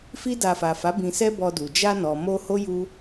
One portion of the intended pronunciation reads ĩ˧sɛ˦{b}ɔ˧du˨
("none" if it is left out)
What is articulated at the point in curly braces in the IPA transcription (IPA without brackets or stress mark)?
b